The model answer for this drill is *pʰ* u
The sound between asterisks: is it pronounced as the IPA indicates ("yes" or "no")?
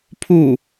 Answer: yes